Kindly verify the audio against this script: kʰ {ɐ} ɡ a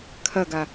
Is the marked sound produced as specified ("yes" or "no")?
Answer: yes